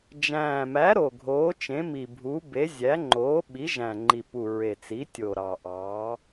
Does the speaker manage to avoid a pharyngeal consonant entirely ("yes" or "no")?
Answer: yes